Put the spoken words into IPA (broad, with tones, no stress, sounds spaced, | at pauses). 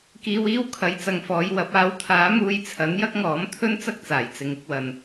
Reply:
k iː˧ w iː˥ w kʰ ɐ˨˥ j t͡s ɐ˨ ŋ f ɔː˨˧ j w ɐ˨˥ p̚ aː˨˥ w t̪ʰ aː˨˥ m uː˧ j t͡sʰ ɐ˨˥ n j ɐ˥ k̚ ŋ ɔː˨˥ m t̪ʰ ɵ˥ n t͡s ɐ˥ k̚ t͡s aː˨˩ j t͡s ɪ˨ ŋ ɪ˧ k̚ w ɐ˨ n